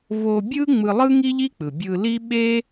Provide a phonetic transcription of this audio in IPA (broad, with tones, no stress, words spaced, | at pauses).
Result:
vo˧bʲɯ˥ ŋ͡mɯ˧lˠɯ˥ ŋi˥ʎi˥k͡pɯ˩ bʲɯ˧li˥ ɓe˥